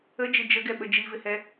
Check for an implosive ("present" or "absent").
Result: present